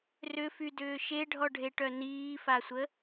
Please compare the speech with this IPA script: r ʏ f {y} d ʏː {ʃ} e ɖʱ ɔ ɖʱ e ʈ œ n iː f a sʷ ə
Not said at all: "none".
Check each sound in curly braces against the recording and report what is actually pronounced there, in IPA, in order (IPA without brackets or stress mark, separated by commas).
y, ʃ